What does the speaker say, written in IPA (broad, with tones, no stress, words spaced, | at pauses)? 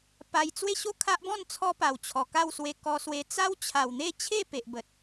pa˧j t͡swe˥˧ɕo˥˧ kʰa˦ʔbɔ̃˥˧n t͡sʰɔ˧pa˨˩w t͡ɕʰɔ˨˩ka˥˧wswe˧ kɔ˧swe˧ t͡sa˦wt͡ɕʰa˨˩w n̪e˥˧t͡ɕʰe˥˧ pe˨ʔ bə˨t̚